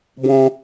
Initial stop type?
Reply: plain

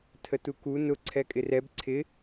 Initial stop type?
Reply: aspirated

